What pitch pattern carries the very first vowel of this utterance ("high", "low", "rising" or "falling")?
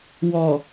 low